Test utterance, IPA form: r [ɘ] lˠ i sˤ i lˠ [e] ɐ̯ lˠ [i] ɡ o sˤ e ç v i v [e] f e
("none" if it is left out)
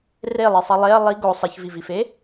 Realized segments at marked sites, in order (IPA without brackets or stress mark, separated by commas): e, e, i, i